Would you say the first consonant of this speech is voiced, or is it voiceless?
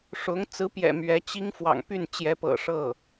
voiceless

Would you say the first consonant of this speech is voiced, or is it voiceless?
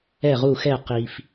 voiced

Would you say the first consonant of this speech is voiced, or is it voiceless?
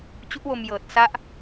voiceless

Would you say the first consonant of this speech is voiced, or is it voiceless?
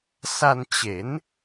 voiceless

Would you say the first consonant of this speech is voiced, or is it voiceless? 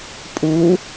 voiceless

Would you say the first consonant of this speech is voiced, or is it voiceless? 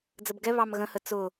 voiced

